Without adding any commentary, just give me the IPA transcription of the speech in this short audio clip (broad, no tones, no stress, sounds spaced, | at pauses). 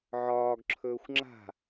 ʕ ɒː ɡ ǁʰ ɵː xʷ ŋ͡ǁ a̤